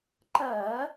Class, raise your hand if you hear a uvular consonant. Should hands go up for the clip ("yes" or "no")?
no